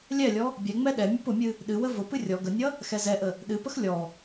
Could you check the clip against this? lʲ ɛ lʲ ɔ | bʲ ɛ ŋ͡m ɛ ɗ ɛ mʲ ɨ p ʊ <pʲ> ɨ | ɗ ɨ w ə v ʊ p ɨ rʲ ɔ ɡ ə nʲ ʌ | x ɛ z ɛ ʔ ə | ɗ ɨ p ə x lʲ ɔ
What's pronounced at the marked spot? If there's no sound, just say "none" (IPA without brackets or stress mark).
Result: mʲ